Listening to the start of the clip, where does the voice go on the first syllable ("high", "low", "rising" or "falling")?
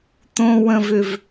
high